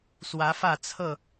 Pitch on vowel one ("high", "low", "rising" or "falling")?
rising